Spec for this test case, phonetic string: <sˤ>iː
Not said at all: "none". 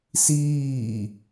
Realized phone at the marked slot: s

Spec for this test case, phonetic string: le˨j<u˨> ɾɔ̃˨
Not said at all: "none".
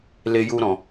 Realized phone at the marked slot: u˨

